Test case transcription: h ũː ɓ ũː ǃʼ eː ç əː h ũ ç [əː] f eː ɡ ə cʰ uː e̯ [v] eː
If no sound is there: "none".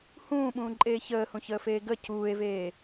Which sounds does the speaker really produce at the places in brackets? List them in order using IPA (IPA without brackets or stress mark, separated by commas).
əː, v